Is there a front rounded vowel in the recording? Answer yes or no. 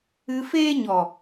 no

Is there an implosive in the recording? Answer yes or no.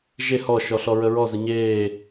no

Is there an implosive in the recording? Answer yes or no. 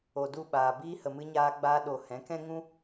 yes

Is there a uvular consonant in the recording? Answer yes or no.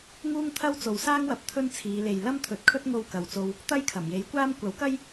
no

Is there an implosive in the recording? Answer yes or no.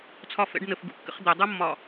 no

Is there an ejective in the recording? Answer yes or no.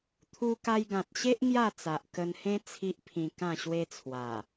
no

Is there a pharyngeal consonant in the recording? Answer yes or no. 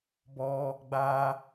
no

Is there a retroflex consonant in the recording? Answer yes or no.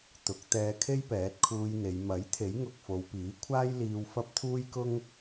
no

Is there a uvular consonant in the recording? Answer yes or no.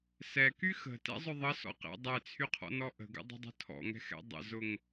yes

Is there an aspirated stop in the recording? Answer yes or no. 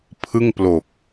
yes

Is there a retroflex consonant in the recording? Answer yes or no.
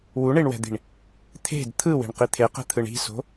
yes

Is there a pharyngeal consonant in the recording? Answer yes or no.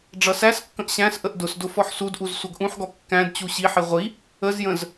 yes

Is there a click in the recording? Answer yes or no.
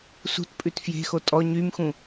no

